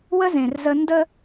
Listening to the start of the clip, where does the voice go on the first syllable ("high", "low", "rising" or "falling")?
high